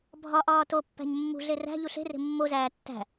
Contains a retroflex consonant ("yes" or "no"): no